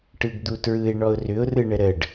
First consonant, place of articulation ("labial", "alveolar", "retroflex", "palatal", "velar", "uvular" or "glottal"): retroflex